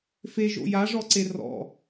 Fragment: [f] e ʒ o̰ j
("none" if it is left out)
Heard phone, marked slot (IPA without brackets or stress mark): f